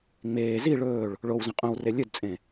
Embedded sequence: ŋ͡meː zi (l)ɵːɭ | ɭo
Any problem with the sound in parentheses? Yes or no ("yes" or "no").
yes